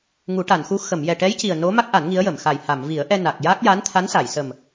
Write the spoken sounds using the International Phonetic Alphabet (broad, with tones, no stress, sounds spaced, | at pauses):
ŋ u˨˩˦ ʈ a˨˩˨ n x u˧˥ x ə˨˩˨ m j ɛ˨˩ ʈ ɛ˧˥ j c i˨˩ ə̯ n o˧˥ m a˦˥ k̚ ʔ a˨˩˦ n ŋ i˧˥ ə̯ j ə˨˩˨ m x a˨˩ j h a˨˩˨ m v i˨˩˦ ə̯ ʔ ɛ˧ n a˨˩ k̚ j a˦˥ k̚ j a˧˥ n t̪ʰ a˧˥ n s a˨˩˨ j s ə˨˩ m